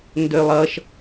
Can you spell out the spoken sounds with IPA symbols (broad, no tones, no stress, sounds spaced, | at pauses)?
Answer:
n d ø lˠ ʌ ʃ